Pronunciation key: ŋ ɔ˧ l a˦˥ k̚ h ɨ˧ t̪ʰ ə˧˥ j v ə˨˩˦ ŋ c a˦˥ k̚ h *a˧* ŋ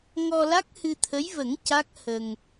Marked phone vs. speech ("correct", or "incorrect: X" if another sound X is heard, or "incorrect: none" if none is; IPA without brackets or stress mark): incorrect: ə˧